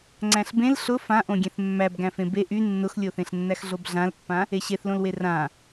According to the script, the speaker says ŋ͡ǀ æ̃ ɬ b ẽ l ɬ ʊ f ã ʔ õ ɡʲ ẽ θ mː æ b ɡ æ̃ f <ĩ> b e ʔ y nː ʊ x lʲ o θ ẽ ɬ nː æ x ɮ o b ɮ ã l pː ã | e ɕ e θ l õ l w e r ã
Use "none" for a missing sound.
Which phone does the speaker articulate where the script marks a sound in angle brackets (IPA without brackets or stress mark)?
ẽ